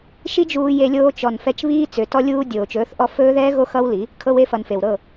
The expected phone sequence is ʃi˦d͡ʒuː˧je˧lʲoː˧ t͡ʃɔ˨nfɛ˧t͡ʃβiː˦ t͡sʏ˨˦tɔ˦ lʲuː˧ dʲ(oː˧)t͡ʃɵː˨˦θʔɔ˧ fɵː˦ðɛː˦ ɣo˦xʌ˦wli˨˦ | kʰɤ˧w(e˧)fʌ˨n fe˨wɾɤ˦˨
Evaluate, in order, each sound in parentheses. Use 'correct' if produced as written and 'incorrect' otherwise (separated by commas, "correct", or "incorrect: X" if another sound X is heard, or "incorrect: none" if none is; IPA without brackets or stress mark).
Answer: incorrect: oː˨, correct